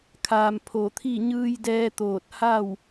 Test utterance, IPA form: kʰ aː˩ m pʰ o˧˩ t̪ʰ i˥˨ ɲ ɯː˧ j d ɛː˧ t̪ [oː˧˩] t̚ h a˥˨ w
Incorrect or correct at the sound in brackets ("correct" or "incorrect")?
correct